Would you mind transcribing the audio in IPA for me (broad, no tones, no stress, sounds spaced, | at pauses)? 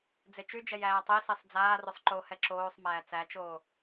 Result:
d͡z e t͡ʃ y d͡ʒ ɛ j æː tˤ i s i sˤ d͡z aː r o sˤ ǃ o h ɛ ǁ oː sˤ m æː t͡s æ t͡ʃ oː